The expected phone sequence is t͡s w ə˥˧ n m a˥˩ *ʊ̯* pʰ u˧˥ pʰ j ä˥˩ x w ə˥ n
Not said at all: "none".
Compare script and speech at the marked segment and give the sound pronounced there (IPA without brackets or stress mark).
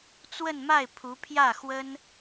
ɪ̯